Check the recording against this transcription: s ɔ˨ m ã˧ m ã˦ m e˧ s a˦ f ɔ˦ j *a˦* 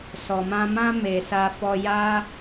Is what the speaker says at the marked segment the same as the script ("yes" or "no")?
yes